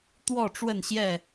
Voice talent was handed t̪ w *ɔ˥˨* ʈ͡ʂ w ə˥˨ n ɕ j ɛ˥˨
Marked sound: correct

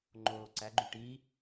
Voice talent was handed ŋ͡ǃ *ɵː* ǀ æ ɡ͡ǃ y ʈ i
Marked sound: incorrect: oː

